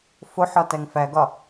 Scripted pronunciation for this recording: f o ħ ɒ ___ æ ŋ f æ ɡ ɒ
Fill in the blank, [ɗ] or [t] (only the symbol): t